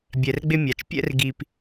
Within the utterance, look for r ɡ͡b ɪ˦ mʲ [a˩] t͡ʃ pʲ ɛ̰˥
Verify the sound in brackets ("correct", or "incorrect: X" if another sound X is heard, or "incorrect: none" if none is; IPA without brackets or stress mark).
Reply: correct